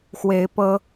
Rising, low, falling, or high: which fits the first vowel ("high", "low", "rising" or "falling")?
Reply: rising